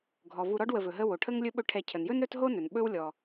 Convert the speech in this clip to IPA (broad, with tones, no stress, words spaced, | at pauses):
ɡʱɔ˩vu˨ɾɔ˦ɖ wə˨vɵ˩ɦə˦ wo˩ʈʰə˥ŋlʲɵ˥ɓɵ˦ ʈʰɛ˨cʰə˩njɵ˥n ɾɵ˥tɦo˥nɵ˩n ɓɵ˥w lʲɔ˨